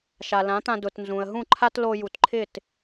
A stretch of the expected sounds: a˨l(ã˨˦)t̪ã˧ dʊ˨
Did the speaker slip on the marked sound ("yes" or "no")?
no